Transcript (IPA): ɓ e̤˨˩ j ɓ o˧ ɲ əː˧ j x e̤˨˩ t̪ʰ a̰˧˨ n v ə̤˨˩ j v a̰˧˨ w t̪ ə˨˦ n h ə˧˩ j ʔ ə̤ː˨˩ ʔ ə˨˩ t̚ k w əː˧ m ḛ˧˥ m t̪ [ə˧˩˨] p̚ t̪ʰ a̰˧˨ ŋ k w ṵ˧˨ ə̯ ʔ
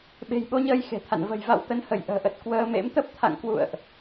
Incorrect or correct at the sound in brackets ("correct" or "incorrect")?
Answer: incorrect